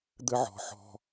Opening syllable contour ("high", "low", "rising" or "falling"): high